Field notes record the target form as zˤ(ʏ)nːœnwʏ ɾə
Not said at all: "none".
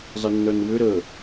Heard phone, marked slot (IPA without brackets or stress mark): ɪ